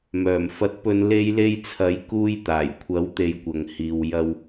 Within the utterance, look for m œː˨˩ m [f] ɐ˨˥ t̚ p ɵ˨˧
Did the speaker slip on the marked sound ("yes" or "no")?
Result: no